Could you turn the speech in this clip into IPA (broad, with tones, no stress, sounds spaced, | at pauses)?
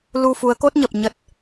l u˧ f u˨˦ ə̯ k o˦˥ t̚ ɲ ə˨˩ p̚ ɲ ə˦˥ t̚